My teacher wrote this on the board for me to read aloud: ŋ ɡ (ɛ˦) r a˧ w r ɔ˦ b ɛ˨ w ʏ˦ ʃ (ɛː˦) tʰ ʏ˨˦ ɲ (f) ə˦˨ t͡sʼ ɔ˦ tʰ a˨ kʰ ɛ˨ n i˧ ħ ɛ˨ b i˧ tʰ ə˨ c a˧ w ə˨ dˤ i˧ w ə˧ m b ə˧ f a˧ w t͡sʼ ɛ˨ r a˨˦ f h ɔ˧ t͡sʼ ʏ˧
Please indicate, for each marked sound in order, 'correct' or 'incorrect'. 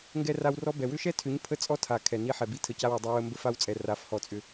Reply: correct, incorrect: ɛ˦, incorrect: pʰ

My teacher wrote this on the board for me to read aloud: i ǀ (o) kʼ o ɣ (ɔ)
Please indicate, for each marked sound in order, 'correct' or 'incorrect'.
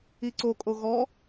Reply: correct, correct

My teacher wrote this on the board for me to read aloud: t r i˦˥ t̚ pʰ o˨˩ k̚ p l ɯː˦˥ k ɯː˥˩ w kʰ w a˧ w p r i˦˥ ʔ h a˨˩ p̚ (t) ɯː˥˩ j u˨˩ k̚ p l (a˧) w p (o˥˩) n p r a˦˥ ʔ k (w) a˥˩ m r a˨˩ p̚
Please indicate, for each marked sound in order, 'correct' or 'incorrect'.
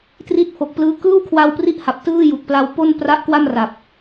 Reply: correct, correct, correct, correct

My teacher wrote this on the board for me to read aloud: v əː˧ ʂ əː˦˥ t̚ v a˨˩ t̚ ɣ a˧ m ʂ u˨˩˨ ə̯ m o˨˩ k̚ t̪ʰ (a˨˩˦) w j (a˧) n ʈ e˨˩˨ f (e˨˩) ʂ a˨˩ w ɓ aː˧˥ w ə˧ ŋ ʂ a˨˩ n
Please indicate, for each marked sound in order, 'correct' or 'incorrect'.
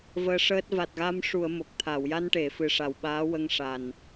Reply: incorrect: a˨˩˨, correct, incorrect: ɨ˨˩

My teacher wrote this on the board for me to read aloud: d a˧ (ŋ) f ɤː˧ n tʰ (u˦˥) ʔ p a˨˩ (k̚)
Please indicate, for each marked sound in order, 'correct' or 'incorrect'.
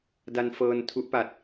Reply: incorrect: n, correct, incorrect: t̚

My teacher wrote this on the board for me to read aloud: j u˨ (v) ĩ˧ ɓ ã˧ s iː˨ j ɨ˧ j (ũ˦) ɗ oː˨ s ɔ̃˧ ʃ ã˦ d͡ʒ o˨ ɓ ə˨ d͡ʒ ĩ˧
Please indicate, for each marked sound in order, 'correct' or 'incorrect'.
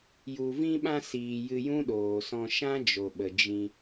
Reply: correct, correct

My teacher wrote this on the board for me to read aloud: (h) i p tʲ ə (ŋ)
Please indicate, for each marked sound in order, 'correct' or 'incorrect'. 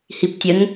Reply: correct, correct

